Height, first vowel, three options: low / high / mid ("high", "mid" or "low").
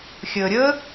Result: mid